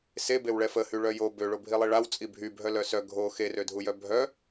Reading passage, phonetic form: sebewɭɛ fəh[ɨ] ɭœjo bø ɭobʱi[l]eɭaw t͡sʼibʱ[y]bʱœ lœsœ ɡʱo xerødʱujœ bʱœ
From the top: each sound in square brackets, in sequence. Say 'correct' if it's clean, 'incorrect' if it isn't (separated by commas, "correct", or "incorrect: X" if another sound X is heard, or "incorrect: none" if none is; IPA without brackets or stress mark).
incorrect: y, incorrect: lˠ, correct